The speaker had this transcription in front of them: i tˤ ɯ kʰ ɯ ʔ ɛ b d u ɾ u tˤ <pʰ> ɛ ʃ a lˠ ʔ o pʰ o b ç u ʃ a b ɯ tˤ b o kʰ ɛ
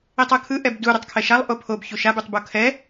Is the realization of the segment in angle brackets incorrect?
yes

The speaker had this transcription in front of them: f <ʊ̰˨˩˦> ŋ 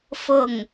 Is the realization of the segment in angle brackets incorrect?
yes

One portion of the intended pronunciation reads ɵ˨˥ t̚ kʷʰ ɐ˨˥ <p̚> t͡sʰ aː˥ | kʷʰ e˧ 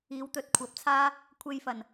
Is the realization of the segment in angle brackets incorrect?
no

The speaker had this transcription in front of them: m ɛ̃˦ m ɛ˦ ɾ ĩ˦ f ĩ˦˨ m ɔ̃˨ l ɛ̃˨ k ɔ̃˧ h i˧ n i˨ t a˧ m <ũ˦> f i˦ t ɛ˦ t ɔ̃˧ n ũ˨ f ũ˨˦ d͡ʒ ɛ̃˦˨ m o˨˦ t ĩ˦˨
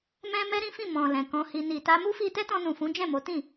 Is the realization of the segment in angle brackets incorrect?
yes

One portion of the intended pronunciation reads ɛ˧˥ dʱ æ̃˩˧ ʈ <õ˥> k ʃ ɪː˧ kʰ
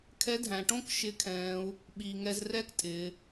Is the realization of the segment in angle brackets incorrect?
no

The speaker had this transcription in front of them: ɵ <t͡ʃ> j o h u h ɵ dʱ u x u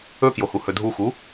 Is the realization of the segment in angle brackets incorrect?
yes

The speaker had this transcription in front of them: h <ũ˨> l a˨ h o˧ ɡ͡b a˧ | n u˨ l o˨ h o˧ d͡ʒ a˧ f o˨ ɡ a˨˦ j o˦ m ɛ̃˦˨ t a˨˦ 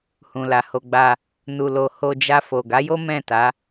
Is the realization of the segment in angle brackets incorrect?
no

